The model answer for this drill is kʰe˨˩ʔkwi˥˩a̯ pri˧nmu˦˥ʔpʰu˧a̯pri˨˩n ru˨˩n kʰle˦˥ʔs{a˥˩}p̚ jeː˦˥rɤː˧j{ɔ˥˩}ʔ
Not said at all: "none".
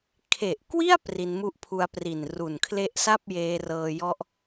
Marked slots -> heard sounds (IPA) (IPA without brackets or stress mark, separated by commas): a˥˩, ɔ˦˥